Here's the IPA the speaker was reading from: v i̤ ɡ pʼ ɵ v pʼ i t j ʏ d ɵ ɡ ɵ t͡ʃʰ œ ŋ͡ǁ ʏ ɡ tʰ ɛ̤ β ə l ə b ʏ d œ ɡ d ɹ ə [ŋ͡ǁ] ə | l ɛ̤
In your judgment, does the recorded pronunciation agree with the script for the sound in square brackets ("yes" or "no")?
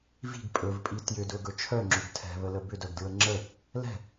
yes